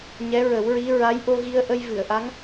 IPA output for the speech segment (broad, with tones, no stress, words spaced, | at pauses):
ɲɛ˧˥ɹə˨˩˦wɹi˧˥ ɹa˧˥jʔo˧ɣi˧ə̯ ʔə˧jvɨ˨˩˨ə̯ʔa˧˥ŋ